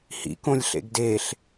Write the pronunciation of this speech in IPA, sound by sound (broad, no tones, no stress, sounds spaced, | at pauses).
h ḭ k õ lʲ ɬ ḛ ɡ d e ɬ